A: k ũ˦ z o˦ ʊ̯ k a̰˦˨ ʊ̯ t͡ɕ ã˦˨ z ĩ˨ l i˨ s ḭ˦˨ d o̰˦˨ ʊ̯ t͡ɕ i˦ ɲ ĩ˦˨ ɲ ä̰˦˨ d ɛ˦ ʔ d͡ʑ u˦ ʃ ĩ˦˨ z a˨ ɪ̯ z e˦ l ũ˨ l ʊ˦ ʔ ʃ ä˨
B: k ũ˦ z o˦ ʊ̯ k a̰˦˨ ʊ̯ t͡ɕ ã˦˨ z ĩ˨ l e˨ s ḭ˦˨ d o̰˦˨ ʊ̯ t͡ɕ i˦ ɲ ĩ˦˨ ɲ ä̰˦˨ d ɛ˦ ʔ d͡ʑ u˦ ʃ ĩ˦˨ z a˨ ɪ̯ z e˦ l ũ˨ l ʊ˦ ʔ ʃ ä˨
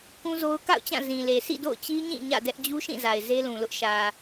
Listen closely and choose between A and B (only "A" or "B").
B